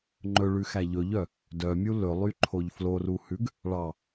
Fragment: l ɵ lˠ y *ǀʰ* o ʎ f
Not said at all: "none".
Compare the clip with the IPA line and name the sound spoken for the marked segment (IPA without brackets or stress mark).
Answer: ǃʰ